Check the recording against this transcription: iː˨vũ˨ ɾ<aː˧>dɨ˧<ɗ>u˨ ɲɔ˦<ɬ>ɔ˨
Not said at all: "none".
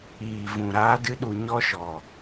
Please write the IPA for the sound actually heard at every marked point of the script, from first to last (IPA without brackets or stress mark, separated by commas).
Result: aː˧, ɗ, ʃ